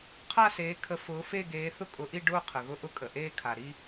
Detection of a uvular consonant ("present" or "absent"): present